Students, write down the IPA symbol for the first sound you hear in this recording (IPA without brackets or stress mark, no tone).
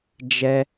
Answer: d͡ʒ